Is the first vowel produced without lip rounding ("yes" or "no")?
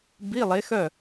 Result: yes